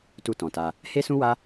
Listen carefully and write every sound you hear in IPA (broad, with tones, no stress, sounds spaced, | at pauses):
t u˧ t ɔ̃˨ t a˧ | h e˦ s ũ˦ w a˦